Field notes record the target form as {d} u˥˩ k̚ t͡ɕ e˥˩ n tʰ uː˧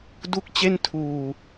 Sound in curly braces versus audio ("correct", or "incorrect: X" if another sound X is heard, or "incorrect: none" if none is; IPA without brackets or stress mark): correct